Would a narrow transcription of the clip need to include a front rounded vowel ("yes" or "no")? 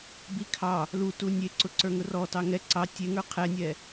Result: no